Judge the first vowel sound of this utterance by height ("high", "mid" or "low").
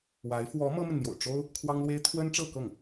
low